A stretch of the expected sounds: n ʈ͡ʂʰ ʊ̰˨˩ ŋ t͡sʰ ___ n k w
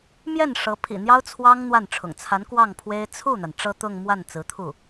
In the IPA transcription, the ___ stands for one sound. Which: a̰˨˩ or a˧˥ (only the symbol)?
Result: a˧˥